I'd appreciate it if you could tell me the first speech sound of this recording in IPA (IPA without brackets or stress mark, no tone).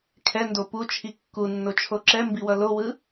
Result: kʰ